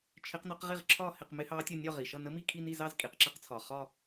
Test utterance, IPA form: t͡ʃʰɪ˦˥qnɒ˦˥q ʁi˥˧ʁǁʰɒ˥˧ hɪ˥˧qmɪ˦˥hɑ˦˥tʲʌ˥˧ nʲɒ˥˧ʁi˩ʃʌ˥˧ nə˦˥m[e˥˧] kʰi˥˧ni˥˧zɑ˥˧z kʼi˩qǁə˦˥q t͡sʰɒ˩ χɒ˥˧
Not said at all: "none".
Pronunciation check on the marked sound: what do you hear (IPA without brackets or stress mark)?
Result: i˥˧